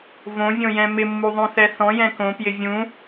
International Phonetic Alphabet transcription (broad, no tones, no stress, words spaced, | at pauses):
võvʲõjɛ̃ mɪmːuðˤõθɛ θɔ̃jɛ̃ kõpjɪ vʲũ